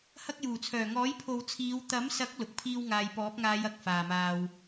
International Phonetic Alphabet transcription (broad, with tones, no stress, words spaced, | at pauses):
hɐ˧k̚juː˨˩t͡sʰœː˨˩ŋɔː˨˥j pʰo˨wt͡sʰiː˨˧w t̪ɐ˨˥msɐ˨˥k̚ lʊ˨˥k̚pʰiː˥wŋaː˧j pɔː˨˥p̚ŋaː˨˧j ɐ˨k̚ faː˨maː˧w